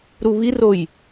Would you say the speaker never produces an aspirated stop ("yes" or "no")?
yes